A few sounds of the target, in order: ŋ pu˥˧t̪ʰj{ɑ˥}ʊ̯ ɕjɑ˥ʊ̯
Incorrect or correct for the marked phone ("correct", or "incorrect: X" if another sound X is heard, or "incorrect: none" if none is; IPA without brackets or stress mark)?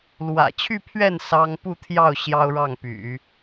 incorrect: ɑ˥˩